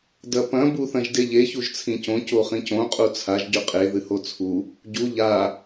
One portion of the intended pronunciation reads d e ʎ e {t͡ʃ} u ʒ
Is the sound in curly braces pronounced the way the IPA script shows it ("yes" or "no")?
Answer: no